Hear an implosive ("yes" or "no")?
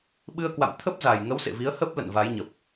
yes